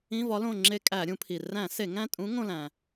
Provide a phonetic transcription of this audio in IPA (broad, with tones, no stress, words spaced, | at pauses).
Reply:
ĩ˧˥˧vɒ˧˥lõ˦˨ŋ͡ǁe˦˨ kʼæ˧˩˧ɾʲũ˧˩˧pʰi˩ ræ̃˧˩˧ se˧˩˧ŋæ̃˦˨tʼũ˧˥ ŋõ˦˨læ̃˩